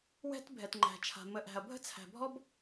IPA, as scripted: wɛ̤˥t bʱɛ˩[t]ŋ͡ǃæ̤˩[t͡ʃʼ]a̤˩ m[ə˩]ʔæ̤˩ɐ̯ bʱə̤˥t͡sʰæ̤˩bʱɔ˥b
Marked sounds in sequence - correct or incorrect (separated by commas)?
correct, incorrect, correct